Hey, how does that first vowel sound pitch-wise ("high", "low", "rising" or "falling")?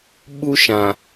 high